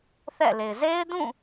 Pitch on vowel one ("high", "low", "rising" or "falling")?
falling